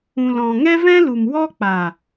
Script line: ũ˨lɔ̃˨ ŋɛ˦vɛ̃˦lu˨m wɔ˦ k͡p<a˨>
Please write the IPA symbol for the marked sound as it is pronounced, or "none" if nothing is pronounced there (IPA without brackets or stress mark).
a˨